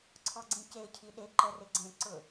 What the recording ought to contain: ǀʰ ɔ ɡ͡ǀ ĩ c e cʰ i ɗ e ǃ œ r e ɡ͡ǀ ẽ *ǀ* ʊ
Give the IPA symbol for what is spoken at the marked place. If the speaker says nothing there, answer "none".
ǀ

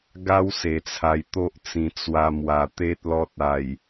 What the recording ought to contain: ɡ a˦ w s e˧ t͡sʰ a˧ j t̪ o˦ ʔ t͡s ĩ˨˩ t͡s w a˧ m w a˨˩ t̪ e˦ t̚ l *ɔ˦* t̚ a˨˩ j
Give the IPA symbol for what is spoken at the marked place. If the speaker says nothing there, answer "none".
ɔ˦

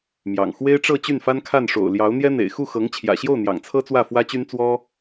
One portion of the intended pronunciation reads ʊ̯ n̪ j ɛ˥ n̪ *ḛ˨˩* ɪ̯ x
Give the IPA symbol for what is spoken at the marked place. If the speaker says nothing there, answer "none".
ḛ˨˩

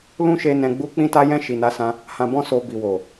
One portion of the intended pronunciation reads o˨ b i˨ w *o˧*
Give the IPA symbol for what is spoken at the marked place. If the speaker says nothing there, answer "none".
o˨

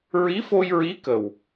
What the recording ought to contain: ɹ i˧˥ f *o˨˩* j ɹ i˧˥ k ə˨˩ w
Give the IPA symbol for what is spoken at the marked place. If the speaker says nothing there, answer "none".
o˧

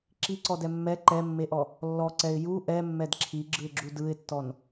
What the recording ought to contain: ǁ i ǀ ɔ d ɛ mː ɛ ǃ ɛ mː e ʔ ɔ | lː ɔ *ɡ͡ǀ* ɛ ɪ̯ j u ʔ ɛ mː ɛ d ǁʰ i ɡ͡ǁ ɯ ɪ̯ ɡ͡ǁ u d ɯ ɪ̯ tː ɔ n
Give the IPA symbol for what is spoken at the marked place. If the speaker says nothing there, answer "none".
ǀ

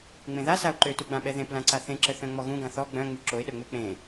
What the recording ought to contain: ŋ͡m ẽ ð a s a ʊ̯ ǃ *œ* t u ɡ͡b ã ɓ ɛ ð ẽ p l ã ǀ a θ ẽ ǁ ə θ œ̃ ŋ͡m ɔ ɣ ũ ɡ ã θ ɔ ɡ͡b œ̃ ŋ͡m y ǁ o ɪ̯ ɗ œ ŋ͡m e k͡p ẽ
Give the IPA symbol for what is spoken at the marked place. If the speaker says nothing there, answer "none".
ø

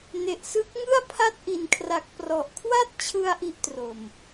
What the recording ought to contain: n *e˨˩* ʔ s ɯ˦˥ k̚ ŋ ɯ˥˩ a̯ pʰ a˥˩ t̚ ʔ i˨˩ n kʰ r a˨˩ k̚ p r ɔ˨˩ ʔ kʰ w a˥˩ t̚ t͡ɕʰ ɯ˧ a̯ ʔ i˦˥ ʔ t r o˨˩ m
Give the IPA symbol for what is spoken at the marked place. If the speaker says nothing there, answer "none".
e˨˩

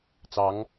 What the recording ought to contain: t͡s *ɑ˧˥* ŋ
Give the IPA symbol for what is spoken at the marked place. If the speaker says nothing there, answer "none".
ɑ˧˥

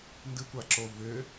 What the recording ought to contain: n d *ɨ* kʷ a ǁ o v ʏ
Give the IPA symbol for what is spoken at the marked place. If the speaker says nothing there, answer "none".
ɨ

